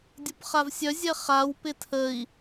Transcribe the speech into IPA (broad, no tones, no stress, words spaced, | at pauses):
dʲopχavsʲœ zʲɛχaw pɪtʰəi̯